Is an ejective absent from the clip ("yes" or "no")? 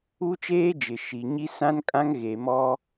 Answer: no